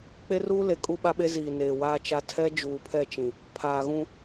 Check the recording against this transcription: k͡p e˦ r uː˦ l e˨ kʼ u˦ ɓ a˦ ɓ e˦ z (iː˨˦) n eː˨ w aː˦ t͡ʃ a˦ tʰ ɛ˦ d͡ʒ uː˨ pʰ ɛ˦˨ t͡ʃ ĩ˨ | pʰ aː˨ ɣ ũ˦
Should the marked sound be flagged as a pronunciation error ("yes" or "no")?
yes